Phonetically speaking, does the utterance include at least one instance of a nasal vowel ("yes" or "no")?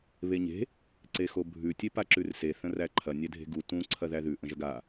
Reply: yes